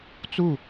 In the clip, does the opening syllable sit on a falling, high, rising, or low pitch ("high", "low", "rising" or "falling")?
falling